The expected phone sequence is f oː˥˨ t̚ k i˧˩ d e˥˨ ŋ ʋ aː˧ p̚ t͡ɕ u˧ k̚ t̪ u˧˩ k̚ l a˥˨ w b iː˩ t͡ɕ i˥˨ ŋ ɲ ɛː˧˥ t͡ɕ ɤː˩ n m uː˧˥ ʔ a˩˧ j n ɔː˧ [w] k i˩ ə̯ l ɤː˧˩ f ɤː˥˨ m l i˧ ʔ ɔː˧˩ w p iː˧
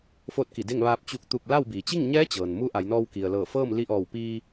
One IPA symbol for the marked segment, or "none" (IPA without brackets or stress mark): w